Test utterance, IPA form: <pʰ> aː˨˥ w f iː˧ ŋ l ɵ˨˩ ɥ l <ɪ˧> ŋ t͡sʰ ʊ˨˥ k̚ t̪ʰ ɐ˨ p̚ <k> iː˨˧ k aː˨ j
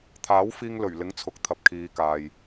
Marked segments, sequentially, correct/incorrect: incorrect: t̪ʰ, incorrect: ɪ˨˥, incorrect: kʰ

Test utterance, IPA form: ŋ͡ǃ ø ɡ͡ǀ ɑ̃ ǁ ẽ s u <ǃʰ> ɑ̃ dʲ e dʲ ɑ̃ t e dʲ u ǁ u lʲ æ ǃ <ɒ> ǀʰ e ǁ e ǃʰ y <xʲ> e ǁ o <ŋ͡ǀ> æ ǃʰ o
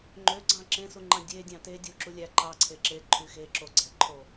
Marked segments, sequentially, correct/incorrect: incorrect: ŋ͡ǃ, incorrect: ɑ, incorrect: x, incorrect: ɡ͡ǀ

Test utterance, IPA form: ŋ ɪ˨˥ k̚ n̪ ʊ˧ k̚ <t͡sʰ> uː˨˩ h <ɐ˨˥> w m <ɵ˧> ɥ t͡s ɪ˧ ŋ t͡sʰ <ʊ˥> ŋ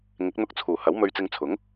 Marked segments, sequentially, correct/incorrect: correct, correct, correct, incorrect: ʊ˨˥

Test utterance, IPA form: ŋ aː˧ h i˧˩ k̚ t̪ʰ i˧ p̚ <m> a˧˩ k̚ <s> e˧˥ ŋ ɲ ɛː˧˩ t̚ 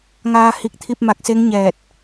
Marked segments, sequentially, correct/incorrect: correct, correct

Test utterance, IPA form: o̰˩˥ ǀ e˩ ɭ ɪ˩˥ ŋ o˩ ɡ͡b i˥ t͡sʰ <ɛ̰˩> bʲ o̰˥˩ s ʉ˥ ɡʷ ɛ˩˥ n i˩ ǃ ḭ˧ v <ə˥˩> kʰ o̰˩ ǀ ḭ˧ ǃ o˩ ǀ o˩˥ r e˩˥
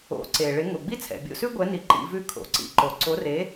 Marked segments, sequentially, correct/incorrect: correct, incorrect: ʉ˥˩

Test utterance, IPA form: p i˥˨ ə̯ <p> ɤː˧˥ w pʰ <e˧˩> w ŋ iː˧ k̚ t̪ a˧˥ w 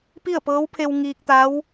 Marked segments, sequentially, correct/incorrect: correct, incorrect: e˧

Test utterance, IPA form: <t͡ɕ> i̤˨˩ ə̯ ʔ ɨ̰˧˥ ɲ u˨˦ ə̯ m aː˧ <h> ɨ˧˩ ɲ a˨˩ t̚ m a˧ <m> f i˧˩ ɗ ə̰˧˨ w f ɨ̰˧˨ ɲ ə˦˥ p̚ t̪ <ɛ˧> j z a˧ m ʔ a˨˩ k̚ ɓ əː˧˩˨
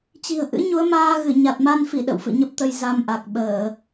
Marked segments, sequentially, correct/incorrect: correct, incorrect: ɣ, incorrect: n, incorrect: ə˧

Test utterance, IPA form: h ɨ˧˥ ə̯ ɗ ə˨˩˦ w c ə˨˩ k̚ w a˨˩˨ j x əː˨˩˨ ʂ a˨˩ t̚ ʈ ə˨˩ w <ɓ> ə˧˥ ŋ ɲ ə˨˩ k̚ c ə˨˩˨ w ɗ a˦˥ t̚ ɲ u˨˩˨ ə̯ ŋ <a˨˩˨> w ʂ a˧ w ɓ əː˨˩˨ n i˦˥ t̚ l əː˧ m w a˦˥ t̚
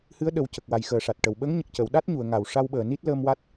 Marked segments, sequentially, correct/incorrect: correct, correct

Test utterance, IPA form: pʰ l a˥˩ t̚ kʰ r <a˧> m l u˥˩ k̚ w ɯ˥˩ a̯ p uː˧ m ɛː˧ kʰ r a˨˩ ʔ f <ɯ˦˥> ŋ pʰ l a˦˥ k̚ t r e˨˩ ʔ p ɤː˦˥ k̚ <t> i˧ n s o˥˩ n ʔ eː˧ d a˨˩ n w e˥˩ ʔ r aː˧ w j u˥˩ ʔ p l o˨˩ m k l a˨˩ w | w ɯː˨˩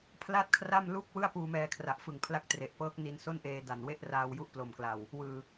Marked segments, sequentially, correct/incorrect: incorrect: a˥˩, incorrect: ɯ˨˩, incorrect: n

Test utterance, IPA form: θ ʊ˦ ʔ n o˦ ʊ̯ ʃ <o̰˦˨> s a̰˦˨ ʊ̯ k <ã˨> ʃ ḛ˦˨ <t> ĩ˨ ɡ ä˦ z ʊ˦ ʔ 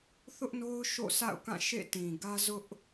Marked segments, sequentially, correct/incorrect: correct, incorrect: ã˦˨, correct

